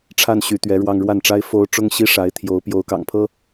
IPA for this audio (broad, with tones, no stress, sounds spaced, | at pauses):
ʈ͡ʂʰ a˥˩ n ɕ y˧˥ t̪ ɥ ɛ˧˥ ɻ w ɑ˥˧ ŋ ɻ w a˥˩ n ʈ͡ʂ a˥ ɪ̯ f o˧˥ ʊ̯ ʈ͡ʂ ʊ˥ ŋ ɕ i˥ ʂ a˧˥ ɪ̯ t̪ʰ j o˧˥ ʊ̯ p j o˧˥ ʊ̯ k ɑ̰˨˩ ŋ pʰ ɤ˥